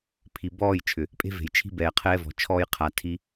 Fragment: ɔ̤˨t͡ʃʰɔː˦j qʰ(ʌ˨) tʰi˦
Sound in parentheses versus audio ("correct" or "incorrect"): incorrect